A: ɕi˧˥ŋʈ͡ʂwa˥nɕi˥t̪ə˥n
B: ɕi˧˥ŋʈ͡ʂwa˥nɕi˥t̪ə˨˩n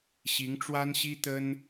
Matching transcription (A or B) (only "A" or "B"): A